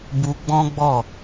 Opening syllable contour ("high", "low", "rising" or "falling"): high